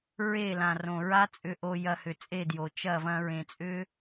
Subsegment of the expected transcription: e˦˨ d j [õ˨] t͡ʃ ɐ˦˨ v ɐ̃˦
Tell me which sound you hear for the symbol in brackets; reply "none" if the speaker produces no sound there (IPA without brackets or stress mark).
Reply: o˨